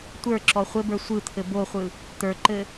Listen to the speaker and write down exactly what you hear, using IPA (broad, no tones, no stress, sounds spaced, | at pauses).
tʷ ə˞ ǁ ɔ χʷ ɘ b ə˞ sʷ ɯ t̪ʰ ɘ b o χʷ ɯ | t̪ ə˞ ǃ ɘ